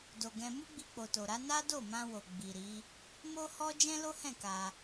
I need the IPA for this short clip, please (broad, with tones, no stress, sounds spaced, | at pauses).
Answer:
d o˨ ɡ ɛ̃˧ m u˦ ɡ͡b i˧ k͡p o˨ t o˨ ɾ a˨˦ n a˦ d o˦˨ m ã˧ w o˨ ɡ͡b i˨ ɾ i˨˦ | m o˦ h ɔ˦ d͡ʒ ɛ̃˦ l o˦ h ɛ̃˦˨ k a˧